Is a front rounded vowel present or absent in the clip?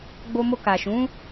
absent